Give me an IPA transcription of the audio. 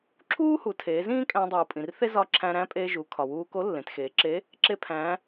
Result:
ǁʰ uː˥ h u˩˧ tʰ eː˩˧ z ĩː˥ kʼ æ̃˧ dˤ uː˩ pʼ ĩ˩ r θ e˥ z ɒ˧˥ ǁʰ æ̃˧ ɾ æ̃˧˥ pʼ eː˧ ʒ u˩˧ kʰ ɒ˩ w uː˧ k o˧˥ lː ẽ˩˧ t x eː˩˧ ǁ e˧˥ | ǁ e˧ pʰ æ̃˩˧

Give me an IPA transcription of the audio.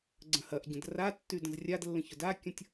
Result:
ɡ͡ǀ ə̃ h ɐ ʔ ɟ ə̃ d r a tː y d ə̃ z rʲ a d lː ə̃ ç ʊ d a kʲ ɐ̃ tʲ

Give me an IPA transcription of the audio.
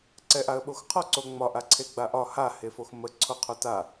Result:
ǀ ɛ ʔ a ə̯ ɓ o x qʰ ɔ ǀ o ŋ͡m ɒ ʔ a ǀʰ e ɡ͡b a ʔ ɒ h a h e f o x m ə ǀʰ o qʰ o t a

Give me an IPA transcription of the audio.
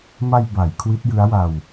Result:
m a˧ j b a˩˦ j kʰ w i˦˥ t̚ j ɯ˦˥ a̯ w a˧ w

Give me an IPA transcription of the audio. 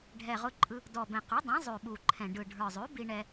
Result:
ɖʱ ɛ˨˩ ʁ ʊ˧ ǃʼ ɯ˧ | d ɔ˨˩ b ɛ̃˨˩ q ʉ˩˥ dˤ ɛ̃˩˥ zˤ ʉ˨˩ ɓ u˨˩ ǃʰ ɛ̃˨˩ ɖ ɯ˨˩ ɖʱ ə˞˨˩ zˤ ʉ˩˥ b i˧ ɳ ɛ˧

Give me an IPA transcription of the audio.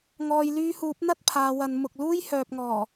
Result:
ŋ ɔː˨ j l yː˧ h uː˨˥ p̚ n̪ ɐ˥ t̚ pʰ aː˨˧ w ɐ˨˧ n m ʊ˨ k̚ l uː˥ j h œː˨ p̚ ŋ ɔː˨˩

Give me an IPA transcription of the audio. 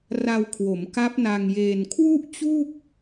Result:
r a˧ w kʰ w o˩˦ m k a˦˥ p̚ n a˧ ŋ j eː˧ n kʰ w u˥˩ ʔ t͡ɕ u˥˩ k̚

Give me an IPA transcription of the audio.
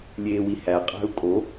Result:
lʲ eː w i h æ qʼ æ̤ u̯ kʼ o

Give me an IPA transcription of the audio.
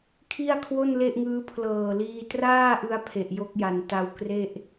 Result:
kʰ i˥˩ a̯ kʰ w o˥˩ n l e˥˩ ʔ ŋ ɯː˦˥ pʰ l ɤː˨˩ l iː˧ t r aː˥˩ ʔ ɯ˥˩ a̯ pʰ e˨˩ ʔ j o˦˥ k̚ j a˩˦ n t a˧ w k r e˥˩ ʔ

